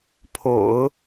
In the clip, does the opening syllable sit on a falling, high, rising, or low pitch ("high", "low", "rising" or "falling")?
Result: low